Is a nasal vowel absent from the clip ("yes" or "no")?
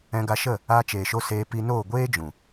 no